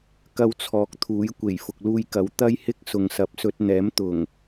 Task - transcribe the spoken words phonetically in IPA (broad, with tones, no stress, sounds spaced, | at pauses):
k ɐ˧ w t͡sʰ ɔː˨˥ k̚ t̪ʰ uː˨˥ j kʷ e˨˩ j f ʊ˨ k̚ l uː˧ j k ɐ˨˧ w t̪ ɐ˥ j h ɪ˥ k̚ s ʊ˨ ŋ s ɐ˨ p̚ s ɵ˧ t̚ n̪ ɛː˨˥ m t̪ ʊ˨˩ ŋ